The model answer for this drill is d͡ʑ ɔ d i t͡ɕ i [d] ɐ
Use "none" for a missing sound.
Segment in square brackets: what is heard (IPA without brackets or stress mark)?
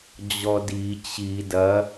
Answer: d